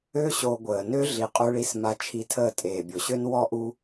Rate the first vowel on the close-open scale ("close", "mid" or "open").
mid